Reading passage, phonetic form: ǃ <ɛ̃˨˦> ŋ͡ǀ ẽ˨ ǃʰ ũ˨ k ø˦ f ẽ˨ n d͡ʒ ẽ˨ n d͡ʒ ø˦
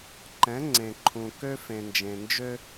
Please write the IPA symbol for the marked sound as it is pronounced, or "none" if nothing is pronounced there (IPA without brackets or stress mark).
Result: ɛ̃˨˦